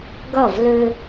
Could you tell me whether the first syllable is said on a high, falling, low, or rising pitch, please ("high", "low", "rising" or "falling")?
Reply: falling